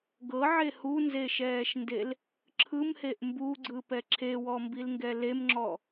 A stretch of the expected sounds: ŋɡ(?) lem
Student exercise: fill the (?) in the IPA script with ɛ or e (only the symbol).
ɛ